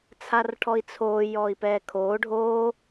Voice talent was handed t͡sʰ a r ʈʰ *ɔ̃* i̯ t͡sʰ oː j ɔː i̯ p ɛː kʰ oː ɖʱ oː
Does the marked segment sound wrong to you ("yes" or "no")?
yes